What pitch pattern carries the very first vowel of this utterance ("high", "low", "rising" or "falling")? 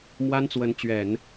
high